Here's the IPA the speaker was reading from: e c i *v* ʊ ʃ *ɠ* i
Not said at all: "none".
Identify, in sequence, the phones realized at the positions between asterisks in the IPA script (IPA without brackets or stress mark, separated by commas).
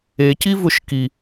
v, k